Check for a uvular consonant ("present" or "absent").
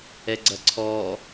absent